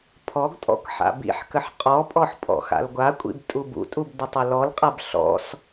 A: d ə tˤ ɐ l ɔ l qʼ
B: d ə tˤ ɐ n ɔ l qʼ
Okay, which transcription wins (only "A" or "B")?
A